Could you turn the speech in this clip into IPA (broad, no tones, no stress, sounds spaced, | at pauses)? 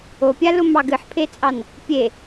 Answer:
o pʲ a l ʊ m ɑ ɡ ɨ ħ pʰ e t͡sʼ ɑ n | pʲ e